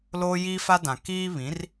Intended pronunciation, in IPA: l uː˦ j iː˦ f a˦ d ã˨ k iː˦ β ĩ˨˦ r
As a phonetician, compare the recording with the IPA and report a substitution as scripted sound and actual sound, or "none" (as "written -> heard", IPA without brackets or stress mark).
uː˦ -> oː˦